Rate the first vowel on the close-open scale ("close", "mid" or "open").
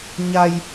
open